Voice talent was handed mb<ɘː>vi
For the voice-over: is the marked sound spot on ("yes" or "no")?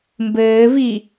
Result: yes